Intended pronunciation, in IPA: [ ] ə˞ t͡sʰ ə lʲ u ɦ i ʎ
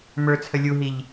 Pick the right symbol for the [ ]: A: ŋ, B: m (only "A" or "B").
B